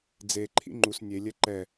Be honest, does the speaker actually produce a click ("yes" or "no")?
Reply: yes